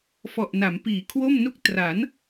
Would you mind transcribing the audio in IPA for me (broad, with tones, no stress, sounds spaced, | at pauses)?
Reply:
f ɔ˨˩ ʔ n a˩˦ m p iː˩˦ kʰ w o˥˩ m n u˥˩ k̚ t r a˩˦ n